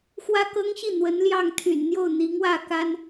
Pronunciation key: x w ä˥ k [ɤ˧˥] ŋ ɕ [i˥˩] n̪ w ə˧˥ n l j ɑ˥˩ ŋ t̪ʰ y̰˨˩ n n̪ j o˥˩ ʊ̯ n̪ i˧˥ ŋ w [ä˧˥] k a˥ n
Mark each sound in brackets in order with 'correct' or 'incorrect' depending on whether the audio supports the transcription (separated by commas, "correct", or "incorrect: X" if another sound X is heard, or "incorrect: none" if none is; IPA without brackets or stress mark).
incorrect: ɤ˥, correct, incorrect: ä˥˩